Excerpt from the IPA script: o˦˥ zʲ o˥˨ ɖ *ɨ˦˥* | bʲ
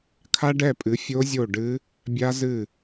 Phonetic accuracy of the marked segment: correct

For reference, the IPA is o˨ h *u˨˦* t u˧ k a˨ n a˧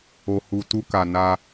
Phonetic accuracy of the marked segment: incorrect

